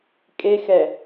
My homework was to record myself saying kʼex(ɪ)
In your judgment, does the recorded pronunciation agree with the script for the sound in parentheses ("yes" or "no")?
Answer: no